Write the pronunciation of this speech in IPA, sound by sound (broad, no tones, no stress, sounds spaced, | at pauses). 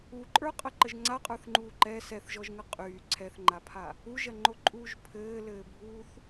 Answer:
u ǃʼ ə˞ qʼ ə ǃ ə ʒ ŋ͡ǀ a qʼ ə˞ θ ŋ͡ǃ uː ǃ ɛ s ɛ θ ʒ ɔ ʒ ŋ ə qʼ yː ǀʰ ɛ θ ŋ͡ǃ a pʰ a | u ʒ ɐ ŋ͡ǃ o ǃʼ uː ʒ pʰ ɘː l ɘː bʱ uː θ